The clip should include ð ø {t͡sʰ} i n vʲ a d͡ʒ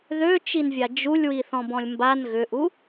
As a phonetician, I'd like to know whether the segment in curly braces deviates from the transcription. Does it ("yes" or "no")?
yes